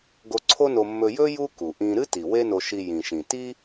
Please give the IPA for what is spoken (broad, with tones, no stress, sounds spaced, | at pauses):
ɡ o˧ ǀʰ o˥ n o˧ mː ɵ˧ j ɵ˥ j u˥ k u˩ ʔ ĩ˧ ɾ ɨ˥ t i˩ w e˥ n o˧ ʃ i˧ j ĩ˩ ʃ ĩ˩ t i˥